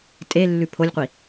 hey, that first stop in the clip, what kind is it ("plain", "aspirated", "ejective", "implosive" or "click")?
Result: ejective